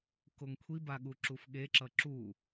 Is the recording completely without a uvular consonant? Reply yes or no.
yes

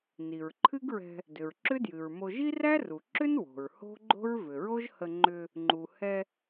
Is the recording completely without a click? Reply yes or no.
no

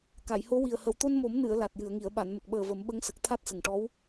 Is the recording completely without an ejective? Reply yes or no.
yes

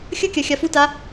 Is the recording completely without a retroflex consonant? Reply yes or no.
yes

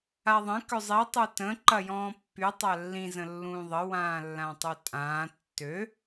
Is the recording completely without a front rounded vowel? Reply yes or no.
no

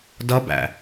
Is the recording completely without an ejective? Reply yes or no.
yes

